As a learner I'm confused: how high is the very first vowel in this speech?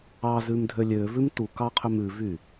low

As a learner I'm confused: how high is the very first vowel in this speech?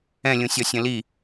mid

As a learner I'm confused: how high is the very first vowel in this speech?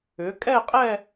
high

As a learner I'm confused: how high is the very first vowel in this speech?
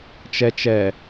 mid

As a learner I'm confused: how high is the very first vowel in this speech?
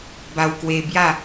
low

